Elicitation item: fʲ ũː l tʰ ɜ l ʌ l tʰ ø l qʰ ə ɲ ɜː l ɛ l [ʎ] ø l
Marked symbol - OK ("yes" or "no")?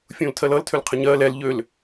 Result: yes